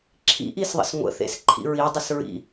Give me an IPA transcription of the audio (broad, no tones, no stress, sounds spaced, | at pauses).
ǁʰ ḭ ʔ i s ðˤ ə̰ s ŋʷ ə̰ θ ḛ s ǃʰ ḭ ɹ i dˤ ə s ɹ ḭ